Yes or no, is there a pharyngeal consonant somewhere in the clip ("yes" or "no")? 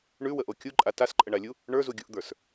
no